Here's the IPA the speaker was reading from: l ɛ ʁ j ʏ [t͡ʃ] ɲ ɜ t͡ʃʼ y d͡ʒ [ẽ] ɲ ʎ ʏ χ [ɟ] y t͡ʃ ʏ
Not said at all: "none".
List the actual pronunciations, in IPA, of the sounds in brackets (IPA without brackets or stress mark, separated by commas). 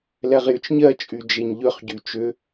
t͡ʃ, e, ɟ